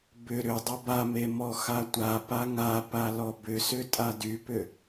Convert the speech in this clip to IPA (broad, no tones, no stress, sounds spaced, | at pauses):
b ʏ ɾ ʏ dˤ ʏ b a m e m ɔ x a tʷ a p a ŋ a p a l ɔ b ʏ s ʏ tʼ a d y p ʏ